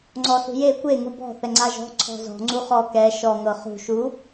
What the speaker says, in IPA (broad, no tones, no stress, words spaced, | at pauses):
ŋ͡ǀɔsṳje kʷe ŋubɔ̤ θɛŋ͡ǀaʒɔ̤ ǀʰɔ̤zɔ̤ ŋ͡ǀuχɔ kɛ ʃɔ ŋɤχṳ ʃu